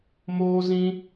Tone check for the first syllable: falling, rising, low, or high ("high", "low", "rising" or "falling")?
high